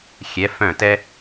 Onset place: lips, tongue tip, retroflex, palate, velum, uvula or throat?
velum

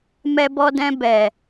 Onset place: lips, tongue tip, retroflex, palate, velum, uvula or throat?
lips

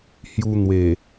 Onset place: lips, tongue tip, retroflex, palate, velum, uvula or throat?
throat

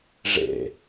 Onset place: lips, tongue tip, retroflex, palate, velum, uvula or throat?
retroflex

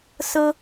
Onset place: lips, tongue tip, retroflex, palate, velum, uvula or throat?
tongue tip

